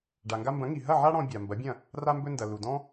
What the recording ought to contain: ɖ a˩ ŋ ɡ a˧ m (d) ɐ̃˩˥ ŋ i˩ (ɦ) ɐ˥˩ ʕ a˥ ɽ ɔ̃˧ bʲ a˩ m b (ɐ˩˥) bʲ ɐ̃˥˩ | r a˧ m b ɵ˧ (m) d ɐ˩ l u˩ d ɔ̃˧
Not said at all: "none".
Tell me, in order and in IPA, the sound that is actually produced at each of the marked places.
b, ɦ, ɐ˩˥, n

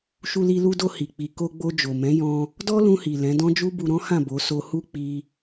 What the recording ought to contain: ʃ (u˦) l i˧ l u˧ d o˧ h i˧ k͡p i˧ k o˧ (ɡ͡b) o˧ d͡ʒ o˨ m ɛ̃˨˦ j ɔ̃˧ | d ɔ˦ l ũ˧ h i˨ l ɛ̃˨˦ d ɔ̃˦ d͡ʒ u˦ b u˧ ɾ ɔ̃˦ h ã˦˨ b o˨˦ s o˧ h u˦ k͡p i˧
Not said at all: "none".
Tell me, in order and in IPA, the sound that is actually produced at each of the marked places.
u˧, ɡ͡b

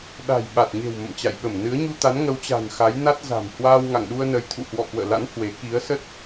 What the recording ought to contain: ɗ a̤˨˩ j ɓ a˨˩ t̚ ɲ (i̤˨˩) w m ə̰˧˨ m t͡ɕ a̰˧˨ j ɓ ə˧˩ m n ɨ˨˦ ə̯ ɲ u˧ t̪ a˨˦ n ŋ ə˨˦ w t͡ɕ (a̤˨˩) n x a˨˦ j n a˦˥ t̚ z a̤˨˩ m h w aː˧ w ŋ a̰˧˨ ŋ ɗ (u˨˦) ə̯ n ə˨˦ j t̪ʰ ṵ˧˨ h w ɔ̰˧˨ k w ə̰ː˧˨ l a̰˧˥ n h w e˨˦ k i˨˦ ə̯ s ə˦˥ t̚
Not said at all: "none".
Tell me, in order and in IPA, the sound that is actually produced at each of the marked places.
e̤˨˩, a̤˨˩, u˧

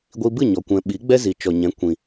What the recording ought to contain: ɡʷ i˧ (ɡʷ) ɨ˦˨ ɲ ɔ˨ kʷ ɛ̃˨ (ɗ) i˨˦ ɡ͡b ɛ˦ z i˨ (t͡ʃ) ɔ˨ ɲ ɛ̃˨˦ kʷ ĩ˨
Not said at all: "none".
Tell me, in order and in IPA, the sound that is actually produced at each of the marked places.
b, ɓ, t͡ʃ

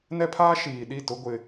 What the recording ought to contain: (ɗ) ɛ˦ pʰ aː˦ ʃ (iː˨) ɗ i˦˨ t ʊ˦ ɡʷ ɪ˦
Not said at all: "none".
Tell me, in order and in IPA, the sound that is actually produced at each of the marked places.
n, iː˨

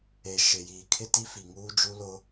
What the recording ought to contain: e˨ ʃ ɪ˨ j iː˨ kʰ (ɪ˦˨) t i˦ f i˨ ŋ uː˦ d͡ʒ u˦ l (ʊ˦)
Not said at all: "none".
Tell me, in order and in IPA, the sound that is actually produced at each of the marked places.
ɪ˦, ʊ˦

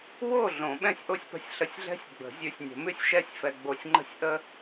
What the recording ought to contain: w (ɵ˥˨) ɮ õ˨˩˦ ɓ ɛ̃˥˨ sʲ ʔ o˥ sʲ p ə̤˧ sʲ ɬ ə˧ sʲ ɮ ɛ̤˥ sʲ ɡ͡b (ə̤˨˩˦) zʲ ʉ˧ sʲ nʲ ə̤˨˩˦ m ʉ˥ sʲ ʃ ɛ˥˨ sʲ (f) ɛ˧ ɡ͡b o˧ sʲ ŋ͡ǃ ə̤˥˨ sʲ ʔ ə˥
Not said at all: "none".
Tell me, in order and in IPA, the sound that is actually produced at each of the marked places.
o˥˨, ə̤˨˩˦, f

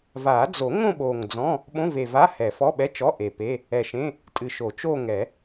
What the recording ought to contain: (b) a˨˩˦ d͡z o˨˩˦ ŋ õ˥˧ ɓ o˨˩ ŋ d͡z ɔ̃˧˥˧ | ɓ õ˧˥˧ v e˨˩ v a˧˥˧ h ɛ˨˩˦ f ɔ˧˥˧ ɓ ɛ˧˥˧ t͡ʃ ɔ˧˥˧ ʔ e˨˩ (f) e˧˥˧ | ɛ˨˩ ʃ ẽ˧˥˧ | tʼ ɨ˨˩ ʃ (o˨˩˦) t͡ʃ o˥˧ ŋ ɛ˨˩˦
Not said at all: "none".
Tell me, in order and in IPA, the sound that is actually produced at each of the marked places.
v, p, o˨˩˦

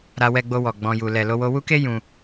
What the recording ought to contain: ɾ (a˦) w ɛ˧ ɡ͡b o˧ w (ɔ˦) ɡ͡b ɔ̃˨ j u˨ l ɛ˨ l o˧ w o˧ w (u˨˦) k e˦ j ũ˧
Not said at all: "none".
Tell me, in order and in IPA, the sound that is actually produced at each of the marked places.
a˧, ɔ˨, u˦

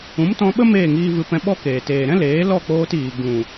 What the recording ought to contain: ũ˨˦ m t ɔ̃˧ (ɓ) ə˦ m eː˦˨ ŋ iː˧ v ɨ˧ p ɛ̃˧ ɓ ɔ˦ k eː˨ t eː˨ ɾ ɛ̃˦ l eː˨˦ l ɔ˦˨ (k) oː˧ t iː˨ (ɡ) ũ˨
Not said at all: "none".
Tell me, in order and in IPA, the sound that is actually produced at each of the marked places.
ɓ, k͡p, ɡ

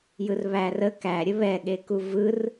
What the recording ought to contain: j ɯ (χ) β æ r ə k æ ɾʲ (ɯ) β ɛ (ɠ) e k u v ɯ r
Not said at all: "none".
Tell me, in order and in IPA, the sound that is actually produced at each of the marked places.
r, ə, ɠ

